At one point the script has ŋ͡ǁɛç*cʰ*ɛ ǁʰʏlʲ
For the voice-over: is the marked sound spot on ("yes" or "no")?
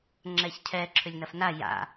yes